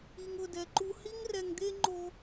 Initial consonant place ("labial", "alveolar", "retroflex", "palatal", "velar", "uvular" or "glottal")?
velar